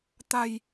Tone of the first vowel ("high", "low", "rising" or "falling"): low